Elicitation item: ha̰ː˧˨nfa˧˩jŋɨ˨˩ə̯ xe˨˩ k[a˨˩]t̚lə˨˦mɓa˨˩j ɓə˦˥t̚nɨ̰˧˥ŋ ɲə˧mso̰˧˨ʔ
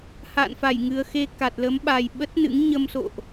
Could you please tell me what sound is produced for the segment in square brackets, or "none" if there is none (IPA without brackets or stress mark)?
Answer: a˨˩